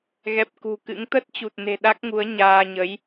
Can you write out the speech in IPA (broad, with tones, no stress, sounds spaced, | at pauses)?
ɣ ɛ˨˩ p̚ k ṳ˨˩ k ɨ̰˧˥ ŋ t̪ ə˦˥ t̚ t͡ɕ u˨˩ t̚ n e̤˨˩ ɗ a˦˥ k̚ ŋ u˨˦ ə̯ ɲ aː˧ ɲ ə˨˦ j